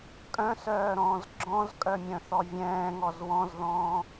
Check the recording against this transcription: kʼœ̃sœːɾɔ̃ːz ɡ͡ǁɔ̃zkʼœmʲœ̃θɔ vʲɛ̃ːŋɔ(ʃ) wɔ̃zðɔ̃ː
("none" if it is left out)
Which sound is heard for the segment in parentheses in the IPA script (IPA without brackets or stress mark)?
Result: z